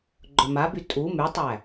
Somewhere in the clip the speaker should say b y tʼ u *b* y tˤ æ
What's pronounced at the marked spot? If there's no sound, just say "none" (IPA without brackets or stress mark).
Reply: m